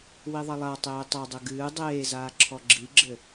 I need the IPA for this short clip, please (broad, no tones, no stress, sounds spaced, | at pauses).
w i ðˤ ɐ lˠ a tˤ eː tˤ ɐ dˤ ɘ ɡ ɨː dˤ eː z aː ǁʰ ɔ ɡ͡ǁ i ɡ͡ǁ ɘ